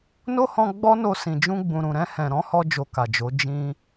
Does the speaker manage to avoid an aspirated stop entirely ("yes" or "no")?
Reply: yes